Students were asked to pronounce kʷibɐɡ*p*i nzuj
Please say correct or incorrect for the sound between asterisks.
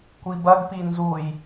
correct